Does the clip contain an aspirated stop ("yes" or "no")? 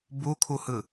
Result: yes